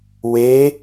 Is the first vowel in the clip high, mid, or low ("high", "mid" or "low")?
mid